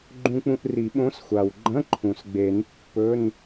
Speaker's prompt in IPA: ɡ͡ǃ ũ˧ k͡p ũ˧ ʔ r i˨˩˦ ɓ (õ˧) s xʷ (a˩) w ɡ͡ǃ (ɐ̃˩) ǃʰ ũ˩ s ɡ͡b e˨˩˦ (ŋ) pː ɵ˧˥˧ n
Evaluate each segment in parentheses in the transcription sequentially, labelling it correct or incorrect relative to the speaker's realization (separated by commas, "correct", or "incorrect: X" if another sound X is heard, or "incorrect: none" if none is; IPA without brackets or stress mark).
incorrect: õ˧˥, correct, incorrect: ɐ̃˧˥˧, incorrect: n